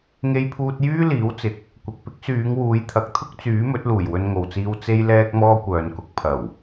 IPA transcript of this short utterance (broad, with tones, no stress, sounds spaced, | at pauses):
ŋ e˧ j pʰ uː˧ t̚ j yː˥ l iː˨˥ w t͡s ɪ˨ k̚ | kʷ ɪ˨ k̚ p ɪ˥ k̚ s yː˨˧ ŋ w uː˨˧ j t̪ʰ ɐ˨ k̚ t̪ʰ ʊ˥ k̚ t͡s yː˨˥ m ɵ˨˥ t̚ l uː˨˩ j w ɵ˧ n ŋ o˨ w t͡s iː˧ w t͡s e˥ j l ɛː˥ k̚ m ɔː˥ kʷ œː˨ n k ʊ˨ k̚ pʰ ɐ˨˩ w